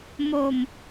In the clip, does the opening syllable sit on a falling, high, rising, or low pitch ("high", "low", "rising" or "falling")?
falling